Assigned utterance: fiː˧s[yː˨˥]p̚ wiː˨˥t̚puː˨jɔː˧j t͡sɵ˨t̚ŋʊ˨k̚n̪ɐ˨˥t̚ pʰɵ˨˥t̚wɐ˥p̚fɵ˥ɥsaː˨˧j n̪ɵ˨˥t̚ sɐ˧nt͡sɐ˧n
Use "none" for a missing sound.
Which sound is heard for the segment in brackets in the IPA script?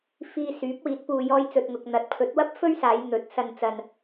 yː˨˥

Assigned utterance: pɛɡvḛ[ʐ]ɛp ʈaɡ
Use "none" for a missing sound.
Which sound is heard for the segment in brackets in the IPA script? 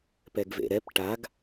ɾ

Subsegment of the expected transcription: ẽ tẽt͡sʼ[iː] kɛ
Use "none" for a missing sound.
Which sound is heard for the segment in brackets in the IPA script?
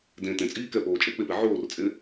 iː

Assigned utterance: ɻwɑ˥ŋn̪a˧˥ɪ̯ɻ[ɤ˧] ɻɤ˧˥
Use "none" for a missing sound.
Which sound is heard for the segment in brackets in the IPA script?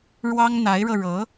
ɤ˧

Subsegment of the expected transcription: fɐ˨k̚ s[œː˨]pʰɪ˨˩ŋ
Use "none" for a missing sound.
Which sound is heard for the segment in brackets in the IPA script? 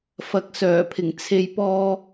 œː˨˩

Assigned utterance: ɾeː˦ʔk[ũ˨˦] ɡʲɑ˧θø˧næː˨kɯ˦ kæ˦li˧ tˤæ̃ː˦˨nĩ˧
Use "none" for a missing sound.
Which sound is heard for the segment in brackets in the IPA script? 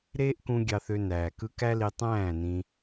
ũ˧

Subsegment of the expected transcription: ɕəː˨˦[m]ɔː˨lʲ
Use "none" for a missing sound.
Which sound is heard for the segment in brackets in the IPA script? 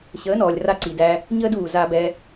n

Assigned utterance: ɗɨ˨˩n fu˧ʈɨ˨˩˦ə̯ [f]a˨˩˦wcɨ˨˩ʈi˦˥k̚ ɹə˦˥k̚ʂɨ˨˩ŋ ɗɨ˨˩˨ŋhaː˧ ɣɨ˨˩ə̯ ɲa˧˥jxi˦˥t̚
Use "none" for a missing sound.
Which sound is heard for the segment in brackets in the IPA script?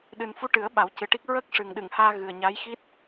ɓ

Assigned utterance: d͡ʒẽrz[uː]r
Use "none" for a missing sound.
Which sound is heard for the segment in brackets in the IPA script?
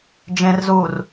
uː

